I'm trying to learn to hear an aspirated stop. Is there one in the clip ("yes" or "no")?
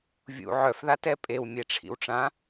yes